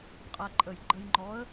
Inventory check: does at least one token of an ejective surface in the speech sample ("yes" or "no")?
yes